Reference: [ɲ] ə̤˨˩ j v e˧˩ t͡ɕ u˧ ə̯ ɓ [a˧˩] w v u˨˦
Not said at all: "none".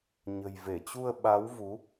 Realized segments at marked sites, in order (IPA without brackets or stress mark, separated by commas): ɲ, a˨˦